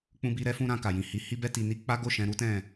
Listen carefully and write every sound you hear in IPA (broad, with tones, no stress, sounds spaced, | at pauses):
k͡p ũ˦ b i˦ ɾ ɛ˦ f ũ˦ ɾ ã˧ k a˨ j ĩ˨ h i˨˦ h i˦ b ɛ˦ t i˧ n i˦ k͡p a˦ ɡ o˦˨ ʃ ɛ̃˧ ɾ u˦ t ɛ̃˦˨